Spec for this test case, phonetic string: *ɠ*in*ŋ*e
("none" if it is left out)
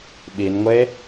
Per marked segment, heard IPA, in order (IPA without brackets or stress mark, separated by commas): ɓ, ŋʷ